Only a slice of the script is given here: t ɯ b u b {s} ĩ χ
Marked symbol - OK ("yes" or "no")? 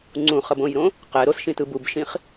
no